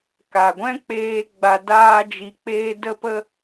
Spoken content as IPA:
ka˨ɡʷɛ̃˦k͡peː˧ ɡ͡ba˧daː˦d͡ʒi˧k͡peː˦ də˦pə˦

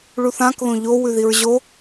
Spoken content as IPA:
ɭuθãk ðõʎo wʉðiɹʑo

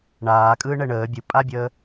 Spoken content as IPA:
ɳaːkʼɯː ɳɛɳəː bʲɯpʼabʲəː

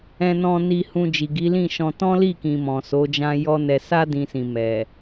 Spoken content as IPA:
ɛ̃˧nɔ̃˧ni˧ hũ˧ d͡ʒi˨ɡi˨˦lĩ˦˨ʃɔ̃˧ tɔ̃˦li˦˨kĩ˨ mɔ̃˨ so˨˦d͡ʒã˦jɔ˦nɛ˧ sa˦ dĩ˦sĩ˧ mɛ˨

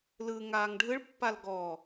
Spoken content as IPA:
lɯŋaːŋ ɖʱɯɭpːal ɡɔ

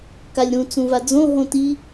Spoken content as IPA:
kalʲɾũ t͡sũvad͡zõ ɦõti

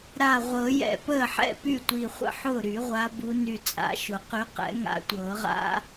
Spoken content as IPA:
ɾa˧˩ʁʷɤ˨˩˦ jɛ̰˧˩pəː˥˩ħɛ̰˥˩py˥˩ tʷi˧˩χʷə̰˥˩ħʊː˥˩ ɾy˨˩˦ʁʷa˨˦bu˨˦ ny˧˩t͡sʼa̰˨˩˦ʃʊ˨˩˦qy˨˦ qɛ̰˨˩˦ŋa̰˨˦tʷɤː˨˩˦ ʁa̰˦˥

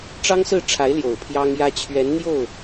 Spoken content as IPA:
ʈ͡ʂɑ˥ŋsɹ̩˥˩ʈ͡ʂʰa˧˥ɪ̯ ljo˨˩ʊ̯pʰjɑ˥ŋjä˥ t͡ɕʰɥɛ˧˥nn̪jo˥˩ʊ̯

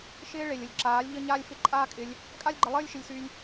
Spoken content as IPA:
ʃɪː˦ ɭe˨lʲ ə˨lʲǁaː˨˦lʲ ʎə˦ ɲaː˦lʲfɪ˦ ǃʼaː˦kʼɪ˧lʲ | kʼa˦lʲɡ͡ǃə˧lˠɘː˦lʲ ʃɪ˧lʲsy˧lʲ

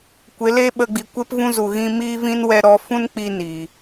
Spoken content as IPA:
kʷe˨˦le˦ ɓə˧ɡ͡bi˨kʷe˦pvũ˦ zu˧ɣĩ˦ miː˦vĩ˦n wɛ˦ ɾɔ˦ fũ˦nk͡pi˧ niː˨

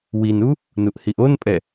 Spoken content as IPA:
winu | nuʔhiʔonpʼɛ

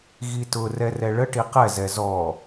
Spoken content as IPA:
ɣitʊ rɛrɛɭəʈi qɛzɛ zɔ

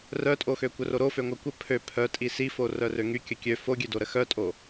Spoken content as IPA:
rœtʼoxø kʷœroɾofø ŋʷœkʷə pʰø pʰœtʼi sifo rœrøŋy kʲəkʲø foɡʲødo ɾəxœtʼo

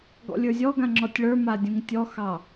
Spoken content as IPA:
ɡɔ̰lʲə˞zʲɔɡã ŋ͡ǁɔtʲɭə˞ma dʲũŋtʲɔxɑ

